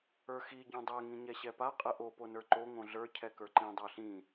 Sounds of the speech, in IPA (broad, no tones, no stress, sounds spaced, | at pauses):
ə˞ x i ɟ õ dˤ ɛ ŋ ĩ ɲ ɛ ɕ ɛ p a qʼ ə ʔ o p o n ə˞ ǃ o ŋ õ ɮ ə˞ cʰ ɛ k ə˞ ǃ ĩ dˤ ə˞ ɬ ĩ